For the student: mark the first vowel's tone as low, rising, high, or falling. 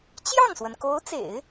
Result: falling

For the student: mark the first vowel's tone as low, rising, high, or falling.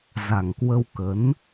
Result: low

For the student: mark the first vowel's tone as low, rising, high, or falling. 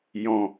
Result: low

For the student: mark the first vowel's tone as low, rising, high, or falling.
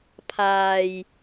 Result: low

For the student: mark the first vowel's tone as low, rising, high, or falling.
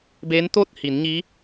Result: rising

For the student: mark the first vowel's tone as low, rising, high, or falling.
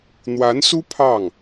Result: rising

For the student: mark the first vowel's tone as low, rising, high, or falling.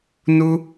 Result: high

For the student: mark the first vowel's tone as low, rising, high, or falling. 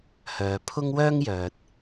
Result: low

